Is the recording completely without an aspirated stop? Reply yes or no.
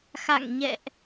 yes